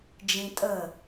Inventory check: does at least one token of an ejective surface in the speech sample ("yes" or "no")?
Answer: yes